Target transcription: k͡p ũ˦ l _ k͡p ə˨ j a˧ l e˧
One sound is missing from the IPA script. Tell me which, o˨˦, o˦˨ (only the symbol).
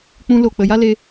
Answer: o˦˨